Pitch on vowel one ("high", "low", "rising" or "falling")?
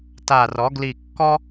low